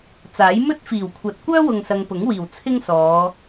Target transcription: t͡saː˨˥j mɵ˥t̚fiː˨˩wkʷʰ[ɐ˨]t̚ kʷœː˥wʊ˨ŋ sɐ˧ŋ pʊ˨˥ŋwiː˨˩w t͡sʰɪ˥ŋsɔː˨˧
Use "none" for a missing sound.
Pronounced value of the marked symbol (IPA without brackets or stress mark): ɐ˨